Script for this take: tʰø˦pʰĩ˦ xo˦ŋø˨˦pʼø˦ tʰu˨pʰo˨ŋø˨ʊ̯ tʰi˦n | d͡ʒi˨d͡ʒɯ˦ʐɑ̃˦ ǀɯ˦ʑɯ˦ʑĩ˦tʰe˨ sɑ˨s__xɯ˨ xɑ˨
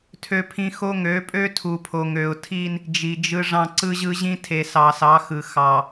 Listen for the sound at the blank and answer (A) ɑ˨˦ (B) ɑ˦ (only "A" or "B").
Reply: A